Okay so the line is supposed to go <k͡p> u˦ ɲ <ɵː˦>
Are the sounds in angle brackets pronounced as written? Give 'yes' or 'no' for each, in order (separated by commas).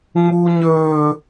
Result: no, yes